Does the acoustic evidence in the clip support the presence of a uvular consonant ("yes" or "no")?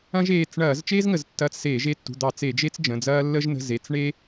no